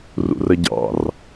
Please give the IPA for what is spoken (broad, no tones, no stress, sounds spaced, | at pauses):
r ṵ r ə ɟ ɑ̰ r